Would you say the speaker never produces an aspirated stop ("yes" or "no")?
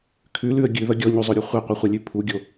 no